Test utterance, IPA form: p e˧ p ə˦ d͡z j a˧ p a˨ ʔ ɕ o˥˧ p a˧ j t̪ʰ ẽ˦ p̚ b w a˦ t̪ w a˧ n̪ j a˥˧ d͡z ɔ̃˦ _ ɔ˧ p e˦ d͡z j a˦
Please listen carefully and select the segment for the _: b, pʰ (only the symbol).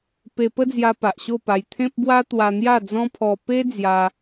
pʰ